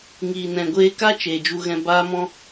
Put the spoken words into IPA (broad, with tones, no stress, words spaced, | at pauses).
ŋiː˨nɛ̃˨ɡʷeː˧ka˦ t͡ʃeː˨d͡ʒu˧ɣɛ̃˧ baː˦mɔ̃˦